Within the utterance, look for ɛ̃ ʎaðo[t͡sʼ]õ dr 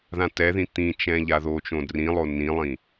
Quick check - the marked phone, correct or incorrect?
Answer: incorrect: t͡ʃ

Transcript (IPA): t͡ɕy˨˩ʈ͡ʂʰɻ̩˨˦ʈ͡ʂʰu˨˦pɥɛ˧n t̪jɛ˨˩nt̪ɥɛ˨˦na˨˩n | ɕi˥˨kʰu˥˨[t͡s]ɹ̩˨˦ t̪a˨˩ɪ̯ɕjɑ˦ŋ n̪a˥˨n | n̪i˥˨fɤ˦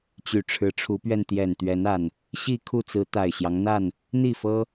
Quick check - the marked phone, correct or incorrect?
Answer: correct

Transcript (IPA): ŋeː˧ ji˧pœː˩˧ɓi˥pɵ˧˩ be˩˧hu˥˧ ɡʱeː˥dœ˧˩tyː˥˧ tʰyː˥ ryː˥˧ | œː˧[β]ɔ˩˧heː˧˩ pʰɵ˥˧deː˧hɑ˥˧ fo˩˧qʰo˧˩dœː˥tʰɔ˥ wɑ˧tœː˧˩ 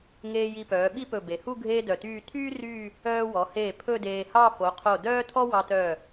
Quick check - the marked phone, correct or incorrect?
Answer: incorrect: w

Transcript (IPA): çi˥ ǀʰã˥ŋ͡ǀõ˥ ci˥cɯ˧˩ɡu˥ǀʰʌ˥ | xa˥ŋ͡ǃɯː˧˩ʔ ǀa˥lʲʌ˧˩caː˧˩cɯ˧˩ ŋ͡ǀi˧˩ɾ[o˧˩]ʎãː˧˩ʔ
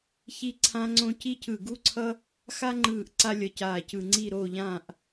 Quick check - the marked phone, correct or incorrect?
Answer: correct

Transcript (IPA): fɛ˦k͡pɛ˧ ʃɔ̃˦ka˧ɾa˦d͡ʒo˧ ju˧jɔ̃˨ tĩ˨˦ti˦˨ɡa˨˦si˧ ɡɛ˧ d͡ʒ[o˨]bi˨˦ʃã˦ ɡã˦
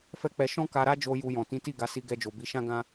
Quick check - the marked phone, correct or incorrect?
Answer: correct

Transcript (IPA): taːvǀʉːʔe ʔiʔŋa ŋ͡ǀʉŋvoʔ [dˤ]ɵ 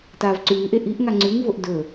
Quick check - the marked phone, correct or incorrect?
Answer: incorrect: d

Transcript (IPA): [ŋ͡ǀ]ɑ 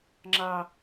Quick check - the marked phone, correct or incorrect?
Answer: incorrect: ŋ͡ǁ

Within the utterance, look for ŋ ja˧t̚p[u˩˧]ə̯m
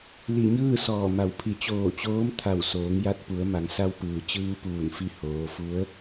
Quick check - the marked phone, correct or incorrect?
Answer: correct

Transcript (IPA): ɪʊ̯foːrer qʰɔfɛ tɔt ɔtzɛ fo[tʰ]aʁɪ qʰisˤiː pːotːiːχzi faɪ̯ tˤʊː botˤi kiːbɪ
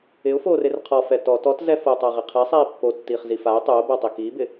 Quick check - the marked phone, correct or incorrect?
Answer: incorrect: tˤ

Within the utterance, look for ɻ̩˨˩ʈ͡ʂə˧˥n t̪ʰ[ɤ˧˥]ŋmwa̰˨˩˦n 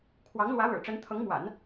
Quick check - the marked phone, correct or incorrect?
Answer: correct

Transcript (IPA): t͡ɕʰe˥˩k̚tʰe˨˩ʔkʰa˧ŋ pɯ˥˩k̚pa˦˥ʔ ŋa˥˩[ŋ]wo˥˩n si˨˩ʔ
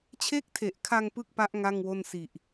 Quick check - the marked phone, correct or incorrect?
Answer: correct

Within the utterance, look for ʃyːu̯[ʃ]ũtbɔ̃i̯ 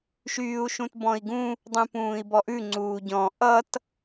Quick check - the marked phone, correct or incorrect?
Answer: correct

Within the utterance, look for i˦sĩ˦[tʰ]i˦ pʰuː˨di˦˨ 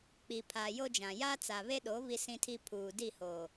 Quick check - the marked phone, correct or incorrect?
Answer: correct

